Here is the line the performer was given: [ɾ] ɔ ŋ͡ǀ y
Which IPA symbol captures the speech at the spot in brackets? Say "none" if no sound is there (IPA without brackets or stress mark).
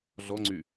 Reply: ɮ